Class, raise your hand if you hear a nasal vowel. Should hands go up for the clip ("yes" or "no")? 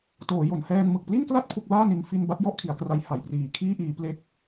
no